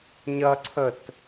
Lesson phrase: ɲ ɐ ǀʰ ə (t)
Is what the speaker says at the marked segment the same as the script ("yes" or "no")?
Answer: yes